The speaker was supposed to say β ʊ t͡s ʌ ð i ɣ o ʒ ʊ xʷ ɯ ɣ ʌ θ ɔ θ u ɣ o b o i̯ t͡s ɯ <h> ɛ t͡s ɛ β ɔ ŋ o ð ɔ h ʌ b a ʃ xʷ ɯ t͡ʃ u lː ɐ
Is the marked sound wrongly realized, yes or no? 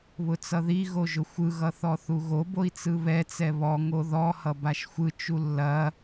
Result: yes